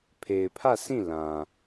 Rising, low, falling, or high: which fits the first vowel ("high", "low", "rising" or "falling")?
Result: low